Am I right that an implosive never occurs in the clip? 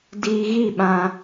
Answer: no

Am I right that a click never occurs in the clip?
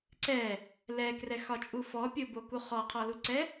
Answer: no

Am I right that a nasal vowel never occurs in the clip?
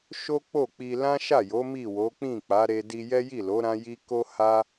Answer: no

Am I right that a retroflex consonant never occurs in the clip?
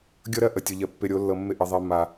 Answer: yes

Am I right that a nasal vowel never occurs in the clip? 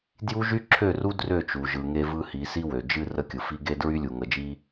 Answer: yes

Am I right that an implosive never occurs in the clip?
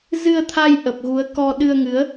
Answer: no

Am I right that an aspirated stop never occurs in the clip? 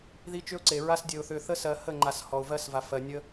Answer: yes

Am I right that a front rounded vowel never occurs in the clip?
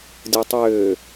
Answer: no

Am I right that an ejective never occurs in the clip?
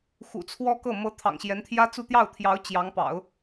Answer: yes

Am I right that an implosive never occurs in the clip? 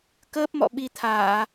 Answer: no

